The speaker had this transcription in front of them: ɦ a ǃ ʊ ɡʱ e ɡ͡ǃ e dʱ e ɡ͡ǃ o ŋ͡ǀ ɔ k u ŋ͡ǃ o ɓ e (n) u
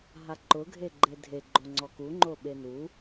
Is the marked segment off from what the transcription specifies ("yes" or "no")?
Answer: no